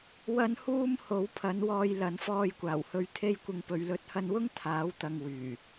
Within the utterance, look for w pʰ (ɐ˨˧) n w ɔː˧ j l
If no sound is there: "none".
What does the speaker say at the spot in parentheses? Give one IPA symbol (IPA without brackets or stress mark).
ɐ˨˥